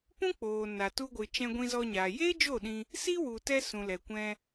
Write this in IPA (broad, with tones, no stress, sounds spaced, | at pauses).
p ũ˦ k͡p oː˨ n a˨ t u˧ ɡʷ ɨ˨ t͡ʃ ɛ̃˧ ɡʷ ĩ˧ z ɔ˧ ɲ aː˨ j eː˦ d͡ʒ o˦˨ ɗ ĩ˧ | s i˦ w u˨ t ɛ˧ s ũ˨ l ɛ˨ kʷ ɛ̃˧